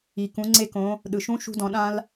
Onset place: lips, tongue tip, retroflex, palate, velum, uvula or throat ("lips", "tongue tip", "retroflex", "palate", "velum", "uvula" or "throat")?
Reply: velum